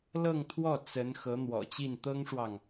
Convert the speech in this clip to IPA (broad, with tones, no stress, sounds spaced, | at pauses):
l ɤ˥˧ ŋ t̪ʰ w ɔ˥˩ t͡s ə˧˥ n x ɤ˧˥ n̪ w ɔ̰˨˩ t͡ɕ i˥˩ n t̪ ɤ˥ ŋ ʂ w ɑ˨ ŋ